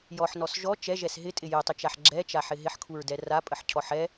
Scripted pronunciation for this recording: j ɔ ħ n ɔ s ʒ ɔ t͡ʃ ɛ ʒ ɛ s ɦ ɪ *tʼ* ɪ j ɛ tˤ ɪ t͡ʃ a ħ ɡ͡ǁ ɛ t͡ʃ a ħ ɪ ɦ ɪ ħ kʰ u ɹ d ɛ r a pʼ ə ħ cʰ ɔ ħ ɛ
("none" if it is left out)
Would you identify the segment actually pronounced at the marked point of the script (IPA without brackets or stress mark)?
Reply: tʼ